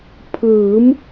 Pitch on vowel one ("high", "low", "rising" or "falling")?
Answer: rising